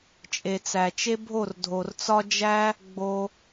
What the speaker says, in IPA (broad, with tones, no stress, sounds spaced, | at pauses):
t͡ʃʼ e˨ t͡s æ˨ t͡ʃ e˦ bʱ o˦˨ r dʱ o˨ r t͡s ɒ˦ d͡ʒ æ˦ | ɡ͡b o˧